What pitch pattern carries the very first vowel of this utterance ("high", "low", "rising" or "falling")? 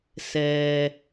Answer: low